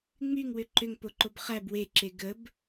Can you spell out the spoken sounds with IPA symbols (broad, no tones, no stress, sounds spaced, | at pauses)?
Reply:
ŋ͡m y ŋ w ʏ ǃ ʏ ŋ p o ǃ o b χ æ b w e ǁ e ɡ ə b